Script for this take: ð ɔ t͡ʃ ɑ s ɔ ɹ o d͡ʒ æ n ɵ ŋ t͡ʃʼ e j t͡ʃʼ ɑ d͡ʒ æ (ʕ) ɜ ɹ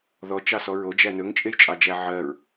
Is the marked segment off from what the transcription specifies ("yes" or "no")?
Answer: no